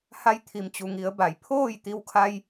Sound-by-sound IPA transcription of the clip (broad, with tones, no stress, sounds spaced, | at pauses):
h a˧ j t̪ʰ i˩ m t͡ɕ u˩ ŋ i˩˧ ə̯ b a˩˧ j pʰ oː˥˨ j t̪ i˧ w kʰ a˧ j